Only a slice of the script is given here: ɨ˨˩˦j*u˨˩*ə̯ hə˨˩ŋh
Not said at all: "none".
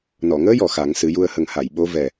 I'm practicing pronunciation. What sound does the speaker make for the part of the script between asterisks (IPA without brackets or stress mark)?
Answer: u˧